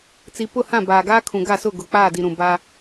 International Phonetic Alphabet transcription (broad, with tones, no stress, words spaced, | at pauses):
t͡si˨pʊ˦˨hã˦˨ baː˨ɡaː˦kʰũ˨ ɡa˦˨sʊ˦˨ ɡʊ˨k͡paː˦˨di˨ ɾũ˨ ba˦